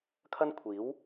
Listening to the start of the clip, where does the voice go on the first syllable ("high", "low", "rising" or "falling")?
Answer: high